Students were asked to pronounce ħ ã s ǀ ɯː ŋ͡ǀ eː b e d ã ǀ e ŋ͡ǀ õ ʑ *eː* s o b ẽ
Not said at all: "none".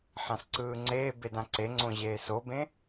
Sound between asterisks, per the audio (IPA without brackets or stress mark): eː